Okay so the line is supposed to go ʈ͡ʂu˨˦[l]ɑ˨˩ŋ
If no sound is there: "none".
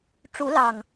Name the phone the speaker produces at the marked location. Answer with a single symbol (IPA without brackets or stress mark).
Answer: l